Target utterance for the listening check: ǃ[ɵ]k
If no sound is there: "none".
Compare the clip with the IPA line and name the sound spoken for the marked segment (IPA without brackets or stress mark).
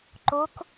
o